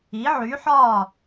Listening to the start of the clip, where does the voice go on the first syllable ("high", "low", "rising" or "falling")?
rising